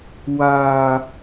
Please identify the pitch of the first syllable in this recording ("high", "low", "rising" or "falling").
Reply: low